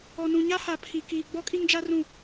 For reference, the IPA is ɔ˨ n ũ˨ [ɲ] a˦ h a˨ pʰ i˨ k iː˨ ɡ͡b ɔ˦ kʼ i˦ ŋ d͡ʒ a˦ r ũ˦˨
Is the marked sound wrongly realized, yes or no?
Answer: no